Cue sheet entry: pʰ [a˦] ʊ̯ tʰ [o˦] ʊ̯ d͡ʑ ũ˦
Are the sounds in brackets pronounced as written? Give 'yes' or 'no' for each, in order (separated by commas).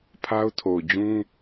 yes, no